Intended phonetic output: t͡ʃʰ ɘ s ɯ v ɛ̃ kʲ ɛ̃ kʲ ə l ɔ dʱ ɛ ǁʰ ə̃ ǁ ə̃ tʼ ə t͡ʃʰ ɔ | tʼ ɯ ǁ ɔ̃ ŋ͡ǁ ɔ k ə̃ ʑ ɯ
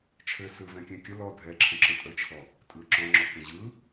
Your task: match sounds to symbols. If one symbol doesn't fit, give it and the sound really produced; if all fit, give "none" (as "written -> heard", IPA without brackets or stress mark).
none